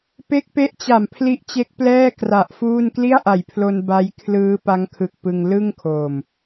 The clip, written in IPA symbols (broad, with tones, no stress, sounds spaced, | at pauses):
p e˦˥ k̚ p e˦˥ ʔ t͡ɕ a˨˩ m pʰ l i˦˥ ʔ t͡ɕ e˦˥ k̚ p l ɛː˥˩ k r a˨˩ ʔ f uː˥˩ n k l i˥˩ a̯ ʔ a˨˩ j pʰ l o˧ n b a˦˥ j kʰ l ɯː˦˥ p a˦˥ ŋ kʰ ɯ˨˩ k̚ p ɯ˧ ŋ l ɯ˥˩ ŋ kʰ oː˨˩ m